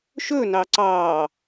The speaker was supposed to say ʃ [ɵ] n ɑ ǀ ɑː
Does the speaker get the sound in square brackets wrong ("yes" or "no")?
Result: no